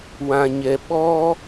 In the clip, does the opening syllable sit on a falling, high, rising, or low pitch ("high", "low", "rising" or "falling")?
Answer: low